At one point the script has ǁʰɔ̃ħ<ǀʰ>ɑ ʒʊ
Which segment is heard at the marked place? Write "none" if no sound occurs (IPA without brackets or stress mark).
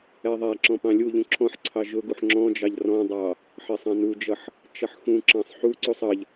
ǀʰ